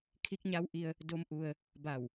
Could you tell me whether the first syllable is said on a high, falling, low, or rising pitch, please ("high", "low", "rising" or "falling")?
rising